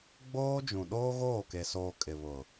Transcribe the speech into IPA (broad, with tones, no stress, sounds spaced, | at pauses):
ɡ͡b oː˦ d͡ʒ ũ˨ ɗ oː˦ ɣ oː˦˨ k e˨ s oː˨ kʼ ɪ˨ β ʊ˨